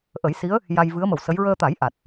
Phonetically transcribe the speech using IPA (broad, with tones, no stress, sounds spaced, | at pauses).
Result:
ʔ ə˨˩˦ j s i˧˥ ə̯ | j a˧ j v ɨ˧˥ ə̯ m ə˨˩ w s ə˧˥ j ɹ əː˧ t̪ a˨˩˦ j ʔ a˨˩ t̚